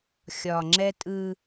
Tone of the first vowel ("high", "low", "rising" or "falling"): low